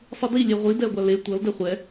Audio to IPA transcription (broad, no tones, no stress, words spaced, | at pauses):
sˤɯdi lʲeʁʷi dɛo̯ɡʷale tʷʌl dɛχʷɛ